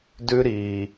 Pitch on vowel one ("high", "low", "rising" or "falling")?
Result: high